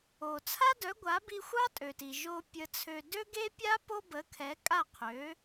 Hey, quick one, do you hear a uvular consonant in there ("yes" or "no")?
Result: yes